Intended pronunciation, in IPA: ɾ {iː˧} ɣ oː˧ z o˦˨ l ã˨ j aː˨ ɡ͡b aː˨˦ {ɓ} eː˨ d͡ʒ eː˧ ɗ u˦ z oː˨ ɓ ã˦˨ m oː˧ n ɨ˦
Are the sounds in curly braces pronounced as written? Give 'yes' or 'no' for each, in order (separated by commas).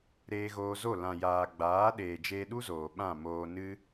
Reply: no, no